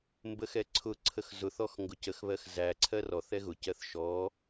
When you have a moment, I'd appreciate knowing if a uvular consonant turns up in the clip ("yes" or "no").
no